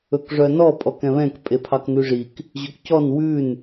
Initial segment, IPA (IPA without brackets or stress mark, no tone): ɵ